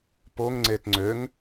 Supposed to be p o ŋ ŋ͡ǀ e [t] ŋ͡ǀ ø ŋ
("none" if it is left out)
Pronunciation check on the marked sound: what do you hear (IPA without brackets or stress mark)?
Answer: t